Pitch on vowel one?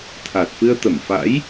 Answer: low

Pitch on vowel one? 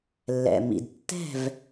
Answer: low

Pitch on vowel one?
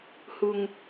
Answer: low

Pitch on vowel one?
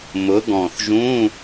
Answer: rising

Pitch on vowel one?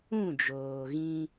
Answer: falling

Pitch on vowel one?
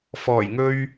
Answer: low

